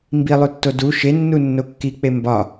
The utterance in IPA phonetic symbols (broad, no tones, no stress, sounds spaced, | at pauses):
m b i lˠ u tː o d u ʃ e nː u nː o kː i k͡p e m b ɒ